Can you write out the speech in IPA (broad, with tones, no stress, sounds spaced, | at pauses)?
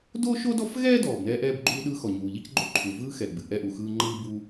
d o˥ ʃ o˥ d ɔ˥ f ɣ ɛː˥ d ɔː˩ b n ɛː˥ ʔ ɛː˥ b ɡ͡ǃ uː˥ ɗ ɯː˥ x ɔ˩ ɲ uː˩ ʎ i˥ c ɡ͡ǃ o˥ ǃʰ u˩ v ɯː˥ x ɛ˩ ɡ͡b ɨ˩ ʔ ɛ˥ ʔ u˩ x ɯː˥ ŋ͡ǃ ɯː˥ b u˥